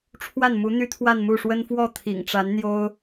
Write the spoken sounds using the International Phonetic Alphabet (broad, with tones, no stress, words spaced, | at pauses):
ʈ͡ʂʰwa˥˩nmu˧˥ n̪y˥t̪ʰwa˥˧nmu˥˩ʂwə˥n fwɔ˥˩t̪ʰḭ˨˩ŋʈ͡ʂa˧˥n n̪jo˥ʊ̯